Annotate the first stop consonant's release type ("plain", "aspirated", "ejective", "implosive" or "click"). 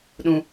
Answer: implosive